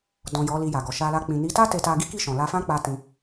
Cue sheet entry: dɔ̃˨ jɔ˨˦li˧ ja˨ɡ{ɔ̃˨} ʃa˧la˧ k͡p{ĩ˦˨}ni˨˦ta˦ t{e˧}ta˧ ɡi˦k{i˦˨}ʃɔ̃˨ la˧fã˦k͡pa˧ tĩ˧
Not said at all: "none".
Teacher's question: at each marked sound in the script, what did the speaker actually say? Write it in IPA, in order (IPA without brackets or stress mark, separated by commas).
ɔ˨, ĩ˨, e˧, i˦˨